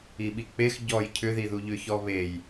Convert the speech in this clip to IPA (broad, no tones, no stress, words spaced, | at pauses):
iɓik͡pex ɟɔj cʰʏðiðu ʎʏçɔβej